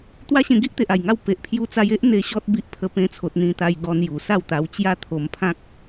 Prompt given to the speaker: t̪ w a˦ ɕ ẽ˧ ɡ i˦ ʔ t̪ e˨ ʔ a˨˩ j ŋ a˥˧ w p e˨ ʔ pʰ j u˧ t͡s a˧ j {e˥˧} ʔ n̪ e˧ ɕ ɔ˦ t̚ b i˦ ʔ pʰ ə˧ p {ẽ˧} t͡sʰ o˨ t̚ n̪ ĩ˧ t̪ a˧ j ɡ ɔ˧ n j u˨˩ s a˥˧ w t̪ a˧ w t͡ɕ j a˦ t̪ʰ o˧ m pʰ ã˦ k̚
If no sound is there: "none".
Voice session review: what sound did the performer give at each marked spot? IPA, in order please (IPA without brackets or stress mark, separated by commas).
e˦, ẽ˧